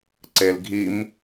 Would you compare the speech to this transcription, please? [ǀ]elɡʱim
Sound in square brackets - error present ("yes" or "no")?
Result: no